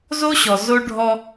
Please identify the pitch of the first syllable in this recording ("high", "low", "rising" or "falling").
high